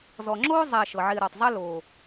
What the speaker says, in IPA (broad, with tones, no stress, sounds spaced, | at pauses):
z ɔ˨ ŋ͡ǁ oː˥ zˤ ɛ˨ ʃ ɤ˩ ʕ ɪː˨ ɾ ɔ˩ tˤ zˤ ɛ˦ l oː˨